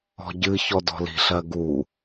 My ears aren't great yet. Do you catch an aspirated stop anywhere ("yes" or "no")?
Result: no